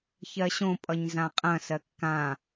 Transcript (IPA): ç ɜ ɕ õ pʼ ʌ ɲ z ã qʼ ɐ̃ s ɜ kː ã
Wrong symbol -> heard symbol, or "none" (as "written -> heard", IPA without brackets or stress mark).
none